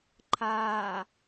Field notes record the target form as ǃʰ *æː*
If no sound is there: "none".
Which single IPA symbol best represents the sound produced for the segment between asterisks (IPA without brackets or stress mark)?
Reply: aː